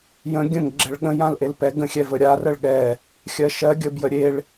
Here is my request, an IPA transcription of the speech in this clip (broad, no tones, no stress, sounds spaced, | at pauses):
j ə̃ ɡʲ ə̃ ŋ ɡ͡ǁ ɛ ɭ ɠ ə̃ j ã l ʔ e l p ɛ ɡ ə̃ xʲ ɛ v ə ɾʲ a r ə ɭ ɠ ɛ | xʲ ɜ ʃ ɜ ɡʲ ə b j ə ɾʲ e ɭ